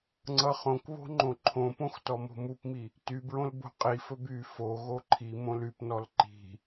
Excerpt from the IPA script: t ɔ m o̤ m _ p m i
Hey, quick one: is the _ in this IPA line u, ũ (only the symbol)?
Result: u